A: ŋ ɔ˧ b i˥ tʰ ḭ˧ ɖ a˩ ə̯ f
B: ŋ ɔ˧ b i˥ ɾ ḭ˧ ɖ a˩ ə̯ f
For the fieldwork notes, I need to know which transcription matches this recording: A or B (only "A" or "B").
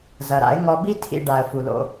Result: A